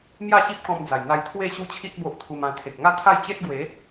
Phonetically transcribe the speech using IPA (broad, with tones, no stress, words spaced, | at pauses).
mja˥˧ɕi˦p̚kɔ̃˧md͡za˨˩j n̪a˧jt̪ʰwe˥˧ ɕu˦t͡ɕʰi˦t̚ bo˦ʔt̪ʰu˧mã˧ t̪ʰe˨k̚ŋa˥˧t̪ʰa˥˧j t͡ɕe˦t̚ ɡwe˨˦